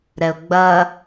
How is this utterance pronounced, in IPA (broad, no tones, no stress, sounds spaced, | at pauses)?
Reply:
ɾ ɛ ʊ̯ ɡ͡b ɐ